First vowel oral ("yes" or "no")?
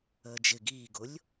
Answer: yes